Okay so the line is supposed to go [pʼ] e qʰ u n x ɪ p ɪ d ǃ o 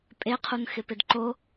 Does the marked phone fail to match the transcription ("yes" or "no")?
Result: no